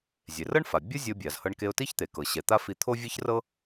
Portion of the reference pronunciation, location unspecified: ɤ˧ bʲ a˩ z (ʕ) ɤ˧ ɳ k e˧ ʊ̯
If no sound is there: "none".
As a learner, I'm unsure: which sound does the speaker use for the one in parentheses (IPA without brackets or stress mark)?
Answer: h